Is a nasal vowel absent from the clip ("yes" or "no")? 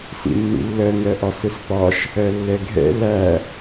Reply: yes